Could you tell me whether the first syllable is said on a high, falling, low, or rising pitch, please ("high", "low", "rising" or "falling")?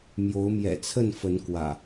rising